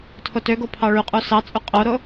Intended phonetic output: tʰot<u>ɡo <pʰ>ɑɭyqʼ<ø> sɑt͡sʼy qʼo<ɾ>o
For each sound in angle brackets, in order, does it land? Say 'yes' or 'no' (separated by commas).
no, yes, no, yes